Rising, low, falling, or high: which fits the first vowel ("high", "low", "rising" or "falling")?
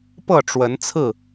falling